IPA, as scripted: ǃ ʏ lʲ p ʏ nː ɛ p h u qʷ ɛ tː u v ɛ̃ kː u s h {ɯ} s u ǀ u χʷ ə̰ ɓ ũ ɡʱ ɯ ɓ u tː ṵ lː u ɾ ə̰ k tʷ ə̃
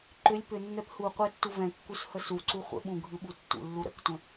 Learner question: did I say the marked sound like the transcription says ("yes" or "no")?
no